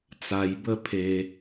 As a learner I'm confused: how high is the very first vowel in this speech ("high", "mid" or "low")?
low